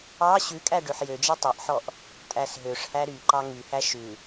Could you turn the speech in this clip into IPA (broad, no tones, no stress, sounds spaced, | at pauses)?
ɑ ɕ ʉ kʼ æ ɖ ø ħ j ø d͡ʒ ɛ tˤ œ ʔ ħ ɔ ʔ | tʼ æ s ɦ ø ʂ h æ ɾ y ǃ ɑ ŋ y h æ ʃ ʉ